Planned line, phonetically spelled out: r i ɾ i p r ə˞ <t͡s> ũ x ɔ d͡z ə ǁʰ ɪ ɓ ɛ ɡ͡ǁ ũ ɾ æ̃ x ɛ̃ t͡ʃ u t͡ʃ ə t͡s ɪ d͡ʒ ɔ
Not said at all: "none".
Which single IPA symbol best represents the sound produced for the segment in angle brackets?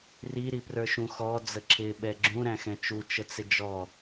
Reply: ʃ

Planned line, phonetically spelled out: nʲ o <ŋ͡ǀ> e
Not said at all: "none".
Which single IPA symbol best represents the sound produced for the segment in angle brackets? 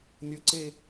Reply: ǀ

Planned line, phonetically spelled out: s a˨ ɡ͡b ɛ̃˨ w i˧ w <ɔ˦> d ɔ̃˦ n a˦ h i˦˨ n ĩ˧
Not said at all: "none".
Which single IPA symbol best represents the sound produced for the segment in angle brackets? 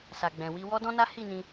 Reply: ɔ˦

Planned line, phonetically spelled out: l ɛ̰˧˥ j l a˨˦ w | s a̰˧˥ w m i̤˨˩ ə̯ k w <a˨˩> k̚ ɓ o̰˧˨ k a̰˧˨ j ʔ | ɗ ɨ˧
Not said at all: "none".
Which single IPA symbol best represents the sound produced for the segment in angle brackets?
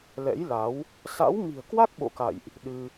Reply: a˦˥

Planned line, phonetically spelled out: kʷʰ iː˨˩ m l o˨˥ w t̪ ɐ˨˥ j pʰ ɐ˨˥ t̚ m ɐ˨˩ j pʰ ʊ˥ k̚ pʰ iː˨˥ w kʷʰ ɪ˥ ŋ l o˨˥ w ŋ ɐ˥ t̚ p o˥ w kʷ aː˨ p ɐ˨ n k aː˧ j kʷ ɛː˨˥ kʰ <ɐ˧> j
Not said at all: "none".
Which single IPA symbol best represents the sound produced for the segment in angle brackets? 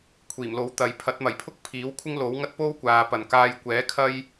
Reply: ɐ˥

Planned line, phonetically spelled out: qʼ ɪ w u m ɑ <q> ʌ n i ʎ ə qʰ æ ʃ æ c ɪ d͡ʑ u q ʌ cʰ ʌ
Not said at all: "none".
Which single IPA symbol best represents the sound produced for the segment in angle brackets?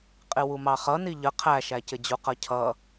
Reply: χ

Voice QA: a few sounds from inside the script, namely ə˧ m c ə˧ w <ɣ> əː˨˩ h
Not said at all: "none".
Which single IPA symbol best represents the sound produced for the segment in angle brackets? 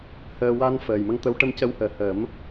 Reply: h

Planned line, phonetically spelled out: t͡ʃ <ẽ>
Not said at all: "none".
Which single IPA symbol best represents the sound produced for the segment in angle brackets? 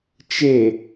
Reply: e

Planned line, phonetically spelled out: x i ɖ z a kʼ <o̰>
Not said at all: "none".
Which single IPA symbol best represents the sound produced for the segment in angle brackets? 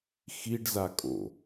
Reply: o̰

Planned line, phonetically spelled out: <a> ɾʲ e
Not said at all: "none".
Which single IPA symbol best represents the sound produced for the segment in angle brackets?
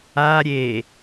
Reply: a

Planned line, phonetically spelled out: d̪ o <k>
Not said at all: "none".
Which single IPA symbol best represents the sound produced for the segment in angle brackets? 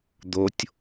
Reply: tʲ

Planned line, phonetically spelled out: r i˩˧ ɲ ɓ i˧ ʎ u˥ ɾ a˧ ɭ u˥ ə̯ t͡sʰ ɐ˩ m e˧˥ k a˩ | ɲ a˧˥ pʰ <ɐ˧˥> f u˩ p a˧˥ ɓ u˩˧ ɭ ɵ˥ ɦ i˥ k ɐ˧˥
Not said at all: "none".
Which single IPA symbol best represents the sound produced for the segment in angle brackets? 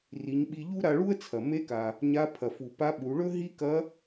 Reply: ɐ˩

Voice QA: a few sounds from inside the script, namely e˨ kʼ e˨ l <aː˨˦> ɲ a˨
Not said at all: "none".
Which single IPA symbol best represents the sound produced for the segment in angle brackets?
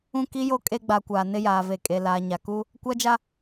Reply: aː˨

